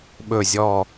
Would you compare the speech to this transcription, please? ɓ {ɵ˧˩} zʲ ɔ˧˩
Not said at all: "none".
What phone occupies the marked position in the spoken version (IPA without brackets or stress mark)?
ɵ˧˩